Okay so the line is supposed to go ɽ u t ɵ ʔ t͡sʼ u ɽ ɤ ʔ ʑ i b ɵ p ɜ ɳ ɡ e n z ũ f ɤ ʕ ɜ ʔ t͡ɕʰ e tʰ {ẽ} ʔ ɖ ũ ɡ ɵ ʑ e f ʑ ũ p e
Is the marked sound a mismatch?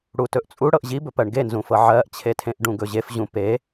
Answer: no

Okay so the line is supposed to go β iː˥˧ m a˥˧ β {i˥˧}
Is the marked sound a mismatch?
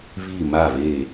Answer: yes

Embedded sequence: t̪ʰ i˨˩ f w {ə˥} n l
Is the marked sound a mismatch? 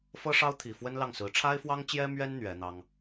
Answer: no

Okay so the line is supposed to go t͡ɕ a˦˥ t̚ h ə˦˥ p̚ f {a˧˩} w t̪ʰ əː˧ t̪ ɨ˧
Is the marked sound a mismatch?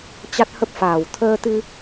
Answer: yes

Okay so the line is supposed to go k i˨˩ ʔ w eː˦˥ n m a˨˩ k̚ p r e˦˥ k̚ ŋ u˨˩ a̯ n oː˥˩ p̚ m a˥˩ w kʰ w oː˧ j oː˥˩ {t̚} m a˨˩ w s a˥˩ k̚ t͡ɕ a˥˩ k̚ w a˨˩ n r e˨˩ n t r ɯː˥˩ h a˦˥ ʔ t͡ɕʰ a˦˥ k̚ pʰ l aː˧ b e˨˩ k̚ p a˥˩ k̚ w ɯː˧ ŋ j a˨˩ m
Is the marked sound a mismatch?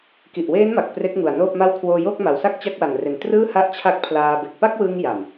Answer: yes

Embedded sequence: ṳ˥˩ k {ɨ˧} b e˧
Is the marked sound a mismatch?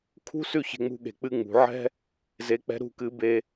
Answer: no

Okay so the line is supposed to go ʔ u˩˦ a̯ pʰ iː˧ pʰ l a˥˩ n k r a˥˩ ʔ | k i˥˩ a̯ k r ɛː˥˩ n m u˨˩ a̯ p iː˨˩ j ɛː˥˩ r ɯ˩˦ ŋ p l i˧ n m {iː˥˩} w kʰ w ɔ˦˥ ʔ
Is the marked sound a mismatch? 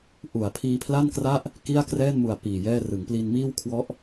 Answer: no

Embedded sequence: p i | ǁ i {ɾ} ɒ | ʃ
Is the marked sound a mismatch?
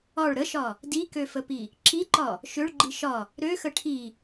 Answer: yes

